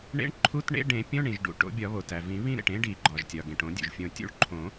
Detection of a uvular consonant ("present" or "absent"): absent